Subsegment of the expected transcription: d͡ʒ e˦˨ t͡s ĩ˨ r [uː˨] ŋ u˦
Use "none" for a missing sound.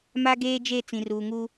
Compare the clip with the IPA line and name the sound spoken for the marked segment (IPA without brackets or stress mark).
uː˨